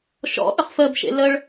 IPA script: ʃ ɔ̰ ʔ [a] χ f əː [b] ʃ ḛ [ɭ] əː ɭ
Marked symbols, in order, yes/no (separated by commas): no, yes, no